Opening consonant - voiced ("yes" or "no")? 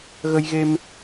yes